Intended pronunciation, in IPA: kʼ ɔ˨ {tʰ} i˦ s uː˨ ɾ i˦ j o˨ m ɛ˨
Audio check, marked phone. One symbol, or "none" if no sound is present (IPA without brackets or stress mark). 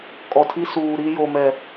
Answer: tʰ